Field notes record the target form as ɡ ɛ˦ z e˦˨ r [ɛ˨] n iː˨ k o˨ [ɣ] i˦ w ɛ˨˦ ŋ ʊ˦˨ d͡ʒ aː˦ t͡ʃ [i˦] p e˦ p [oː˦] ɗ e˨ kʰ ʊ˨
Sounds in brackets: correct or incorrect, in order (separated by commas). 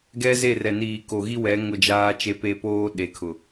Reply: correct, correct, incorrect, correct